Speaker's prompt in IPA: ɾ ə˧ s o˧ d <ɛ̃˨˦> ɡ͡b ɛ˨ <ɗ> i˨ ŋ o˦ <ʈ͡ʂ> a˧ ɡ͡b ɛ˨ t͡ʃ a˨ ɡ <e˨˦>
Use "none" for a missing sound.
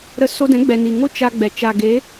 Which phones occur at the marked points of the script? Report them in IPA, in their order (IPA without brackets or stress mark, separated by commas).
ɛ̃˨˦, n, t͡ʃ, e˨˦